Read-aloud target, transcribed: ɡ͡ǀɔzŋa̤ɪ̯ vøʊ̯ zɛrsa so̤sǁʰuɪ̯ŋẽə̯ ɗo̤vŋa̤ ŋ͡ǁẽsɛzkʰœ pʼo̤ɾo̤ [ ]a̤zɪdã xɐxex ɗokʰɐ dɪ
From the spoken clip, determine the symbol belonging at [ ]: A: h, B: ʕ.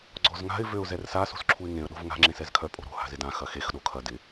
A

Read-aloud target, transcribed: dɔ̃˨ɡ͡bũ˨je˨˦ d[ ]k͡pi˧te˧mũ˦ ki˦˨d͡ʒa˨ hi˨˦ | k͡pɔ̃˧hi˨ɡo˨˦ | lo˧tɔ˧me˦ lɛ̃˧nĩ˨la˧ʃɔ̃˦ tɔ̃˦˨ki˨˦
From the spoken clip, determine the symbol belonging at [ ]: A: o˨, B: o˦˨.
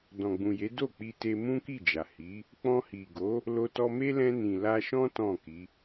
B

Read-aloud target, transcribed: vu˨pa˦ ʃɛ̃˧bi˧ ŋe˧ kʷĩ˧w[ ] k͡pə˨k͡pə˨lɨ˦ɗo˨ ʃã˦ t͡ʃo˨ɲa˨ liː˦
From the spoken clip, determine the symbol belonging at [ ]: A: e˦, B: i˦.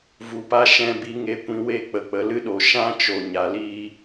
A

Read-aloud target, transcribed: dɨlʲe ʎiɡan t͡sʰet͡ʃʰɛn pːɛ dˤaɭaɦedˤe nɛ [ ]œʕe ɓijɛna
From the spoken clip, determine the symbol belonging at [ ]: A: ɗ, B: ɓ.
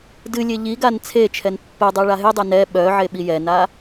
B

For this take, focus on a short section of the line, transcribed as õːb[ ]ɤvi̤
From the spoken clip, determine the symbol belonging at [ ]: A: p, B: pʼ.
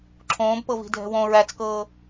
A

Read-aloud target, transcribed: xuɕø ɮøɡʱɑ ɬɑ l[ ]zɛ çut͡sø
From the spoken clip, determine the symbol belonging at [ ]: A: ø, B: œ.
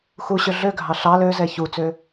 A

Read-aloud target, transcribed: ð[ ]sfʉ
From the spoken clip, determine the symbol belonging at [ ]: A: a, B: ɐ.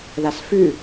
A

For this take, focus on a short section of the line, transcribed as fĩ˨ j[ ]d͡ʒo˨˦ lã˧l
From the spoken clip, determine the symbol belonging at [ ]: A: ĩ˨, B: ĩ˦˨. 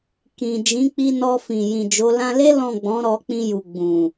A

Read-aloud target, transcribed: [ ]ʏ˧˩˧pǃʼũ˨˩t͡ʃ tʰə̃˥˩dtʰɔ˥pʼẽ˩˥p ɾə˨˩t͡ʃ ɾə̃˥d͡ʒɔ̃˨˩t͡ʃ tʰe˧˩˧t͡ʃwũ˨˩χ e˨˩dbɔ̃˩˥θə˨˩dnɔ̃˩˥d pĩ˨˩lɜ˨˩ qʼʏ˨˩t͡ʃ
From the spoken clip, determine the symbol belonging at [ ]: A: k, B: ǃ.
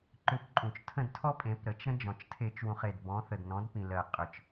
B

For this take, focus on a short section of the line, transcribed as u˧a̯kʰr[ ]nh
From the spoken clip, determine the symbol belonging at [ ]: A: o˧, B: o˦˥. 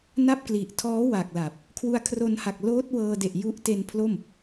A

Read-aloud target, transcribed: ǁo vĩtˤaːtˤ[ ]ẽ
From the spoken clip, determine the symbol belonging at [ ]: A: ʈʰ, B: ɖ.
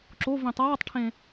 A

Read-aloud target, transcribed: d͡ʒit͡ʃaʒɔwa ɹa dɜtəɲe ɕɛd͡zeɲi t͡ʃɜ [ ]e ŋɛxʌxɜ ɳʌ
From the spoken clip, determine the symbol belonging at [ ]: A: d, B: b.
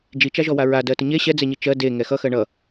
A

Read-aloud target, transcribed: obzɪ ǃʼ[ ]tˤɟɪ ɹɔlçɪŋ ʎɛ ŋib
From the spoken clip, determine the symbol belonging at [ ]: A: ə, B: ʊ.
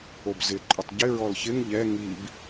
B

